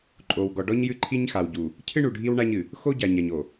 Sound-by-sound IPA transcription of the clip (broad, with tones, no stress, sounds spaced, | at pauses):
ǃʼ o˨ w ɡ ɔ˨ ɖ ɔ˦ ɲ j ɨ˦ ǃʰ i˦ ɲ x a˨ w ɟ u˨ | cʰ ɨ˦ ɳ u˨ ɖʱ i˦ w ɳ a˦ ɲ ɨ˨ | x o˦ ɟ a˨ ɲ a˨ ɲ o˨